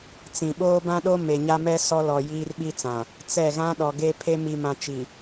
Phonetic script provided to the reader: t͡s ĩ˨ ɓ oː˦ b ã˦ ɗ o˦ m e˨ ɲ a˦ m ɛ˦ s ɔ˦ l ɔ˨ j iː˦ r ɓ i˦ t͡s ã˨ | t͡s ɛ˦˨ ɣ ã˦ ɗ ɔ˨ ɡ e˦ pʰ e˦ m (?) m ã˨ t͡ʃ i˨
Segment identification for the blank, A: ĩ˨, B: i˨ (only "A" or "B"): B